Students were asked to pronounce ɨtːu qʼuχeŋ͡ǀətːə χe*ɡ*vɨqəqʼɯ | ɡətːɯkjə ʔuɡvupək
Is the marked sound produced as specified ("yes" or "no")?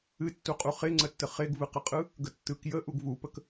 yes